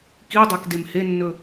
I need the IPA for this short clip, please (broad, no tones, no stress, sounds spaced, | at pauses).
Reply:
k i dˤ ɛ k d e m h e nː ɵ